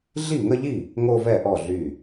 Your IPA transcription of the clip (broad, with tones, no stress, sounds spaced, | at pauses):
ɮ i˥˩ ŋ ə˥˧ ʎ i˥˩ | ŋ o˥˧ v ɛ˥˩ ʔ ɔ˥˩ ɮ y˥˩